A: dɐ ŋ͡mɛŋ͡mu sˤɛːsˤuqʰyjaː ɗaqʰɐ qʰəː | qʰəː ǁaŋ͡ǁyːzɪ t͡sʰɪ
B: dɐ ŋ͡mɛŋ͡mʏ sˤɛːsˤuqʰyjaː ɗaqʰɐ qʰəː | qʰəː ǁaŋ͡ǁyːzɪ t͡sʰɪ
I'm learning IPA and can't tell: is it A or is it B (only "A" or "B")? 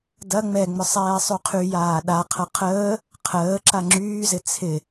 B